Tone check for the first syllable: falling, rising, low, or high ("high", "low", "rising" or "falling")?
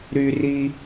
high